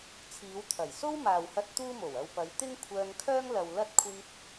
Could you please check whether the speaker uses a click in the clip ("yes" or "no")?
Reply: no